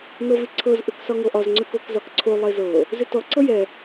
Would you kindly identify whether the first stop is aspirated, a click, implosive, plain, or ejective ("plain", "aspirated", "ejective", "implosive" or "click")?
click